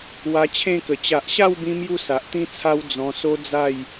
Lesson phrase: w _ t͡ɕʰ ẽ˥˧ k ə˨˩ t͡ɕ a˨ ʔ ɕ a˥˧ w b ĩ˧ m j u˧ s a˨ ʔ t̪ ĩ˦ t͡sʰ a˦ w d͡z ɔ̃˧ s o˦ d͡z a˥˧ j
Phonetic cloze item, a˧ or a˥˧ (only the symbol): a˧